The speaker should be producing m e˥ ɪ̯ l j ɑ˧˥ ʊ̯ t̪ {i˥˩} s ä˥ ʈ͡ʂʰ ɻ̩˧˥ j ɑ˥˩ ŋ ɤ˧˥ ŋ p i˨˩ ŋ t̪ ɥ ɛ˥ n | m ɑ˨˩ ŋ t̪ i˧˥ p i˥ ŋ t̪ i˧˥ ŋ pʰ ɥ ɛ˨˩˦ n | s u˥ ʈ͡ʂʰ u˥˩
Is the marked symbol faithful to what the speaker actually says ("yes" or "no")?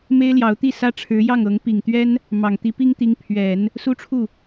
yes